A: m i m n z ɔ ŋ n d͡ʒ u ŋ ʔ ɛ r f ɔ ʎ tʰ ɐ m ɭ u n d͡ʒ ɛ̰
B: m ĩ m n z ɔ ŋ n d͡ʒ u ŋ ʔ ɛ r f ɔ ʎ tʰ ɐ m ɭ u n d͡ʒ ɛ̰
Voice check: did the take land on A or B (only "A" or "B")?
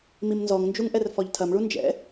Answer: A